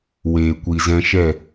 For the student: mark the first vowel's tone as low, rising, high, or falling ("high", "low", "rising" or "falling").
low